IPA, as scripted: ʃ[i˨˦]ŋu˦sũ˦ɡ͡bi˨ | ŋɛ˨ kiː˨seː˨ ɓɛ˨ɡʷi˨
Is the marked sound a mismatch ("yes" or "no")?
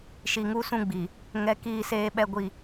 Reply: yes